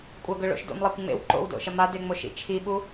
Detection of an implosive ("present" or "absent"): present